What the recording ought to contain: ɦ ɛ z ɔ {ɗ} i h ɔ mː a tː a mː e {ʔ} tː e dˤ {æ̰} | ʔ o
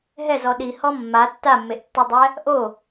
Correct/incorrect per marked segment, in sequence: correct, correct, incorrect

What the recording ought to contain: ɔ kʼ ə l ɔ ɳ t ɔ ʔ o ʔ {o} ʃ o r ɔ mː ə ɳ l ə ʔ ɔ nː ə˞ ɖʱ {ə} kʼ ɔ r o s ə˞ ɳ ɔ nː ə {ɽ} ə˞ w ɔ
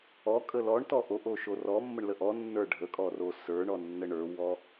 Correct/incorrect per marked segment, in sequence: correct, correct, incorrect

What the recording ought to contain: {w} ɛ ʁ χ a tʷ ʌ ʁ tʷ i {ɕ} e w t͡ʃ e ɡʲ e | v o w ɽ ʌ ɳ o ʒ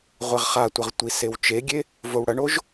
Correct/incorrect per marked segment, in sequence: incorrect, incorrect

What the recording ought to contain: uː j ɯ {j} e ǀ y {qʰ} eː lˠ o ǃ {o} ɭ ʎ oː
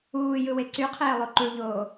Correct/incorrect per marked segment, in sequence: incorrect, correct, incorrect

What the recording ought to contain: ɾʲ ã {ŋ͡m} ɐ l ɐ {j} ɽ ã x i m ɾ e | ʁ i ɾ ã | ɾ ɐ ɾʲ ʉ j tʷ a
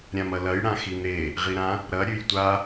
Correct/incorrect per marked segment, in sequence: incorrect, correct

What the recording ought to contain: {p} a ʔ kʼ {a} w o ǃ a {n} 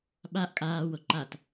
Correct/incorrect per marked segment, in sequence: incorrect, incorrect, incorrect

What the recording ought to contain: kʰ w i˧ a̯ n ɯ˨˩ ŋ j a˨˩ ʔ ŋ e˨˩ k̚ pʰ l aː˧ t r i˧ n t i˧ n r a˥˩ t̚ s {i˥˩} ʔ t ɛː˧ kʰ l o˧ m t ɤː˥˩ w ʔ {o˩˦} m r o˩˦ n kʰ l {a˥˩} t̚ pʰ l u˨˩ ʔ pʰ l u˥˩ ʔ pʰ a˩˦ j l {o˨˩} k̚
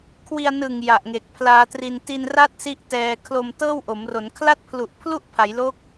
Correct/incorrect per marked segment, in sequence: correct, correct, correct, incorrect

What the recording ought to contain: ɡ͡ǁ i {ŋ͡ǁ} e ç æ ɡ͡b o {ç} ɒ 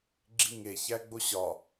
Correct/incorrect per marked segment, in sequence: incorrect, incorrect

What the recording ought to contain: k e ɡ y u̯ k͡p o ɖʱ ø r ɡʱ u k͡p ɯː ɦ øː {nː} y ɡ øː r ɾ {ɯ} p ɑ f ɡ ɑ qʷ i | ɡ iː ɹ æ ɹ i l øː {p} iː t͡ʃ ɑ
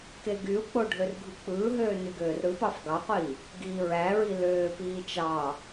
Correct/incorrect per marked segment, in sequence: incorrect, correct, correct

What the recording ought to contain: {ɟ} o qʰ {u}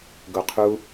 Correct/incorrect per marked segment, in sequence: incorrect, correct

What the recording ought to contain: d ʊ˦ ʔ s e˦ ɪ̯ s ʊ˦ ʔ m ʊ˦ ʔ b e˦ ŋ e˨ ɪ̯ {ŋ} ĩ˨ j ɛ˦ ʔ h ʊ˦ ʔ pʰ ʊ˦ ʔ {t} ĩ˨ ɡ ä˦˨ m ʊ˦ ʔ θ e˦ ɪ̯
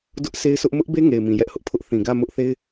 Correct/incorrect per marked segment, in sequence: incorrect, incorrect

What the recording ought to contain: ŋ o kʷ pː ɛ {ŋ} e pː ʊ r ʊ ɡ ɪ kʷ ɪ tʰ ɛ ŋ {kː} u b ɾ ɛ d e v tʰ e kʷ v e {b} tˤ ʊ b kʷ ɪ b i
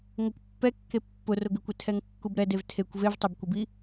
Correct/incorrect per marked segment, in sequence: incorrect, correct, incorrect

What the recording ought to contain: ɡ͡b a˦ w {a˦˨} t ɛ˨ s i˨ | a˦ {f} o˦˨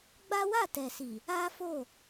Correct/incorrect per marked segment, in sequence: correct, correct

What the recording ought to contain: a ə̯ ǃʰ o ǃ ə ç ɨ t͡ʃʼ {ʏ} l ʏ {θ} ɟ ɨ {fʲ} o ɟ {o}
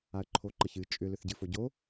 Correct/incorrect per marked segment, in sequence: correct, correct, incorrect, correct

